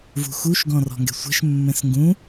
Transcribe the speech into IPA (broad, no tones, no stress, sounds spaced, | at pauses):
v ṳ x u ʃ ɡ ɔ̃ r ɔ̤ ŋ ɡ ɛ̤ sʷ ɛ̤ ʃ mː ɛ̃ s ŋ ɡ ũ